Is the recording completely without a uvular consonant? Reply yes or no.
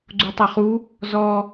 no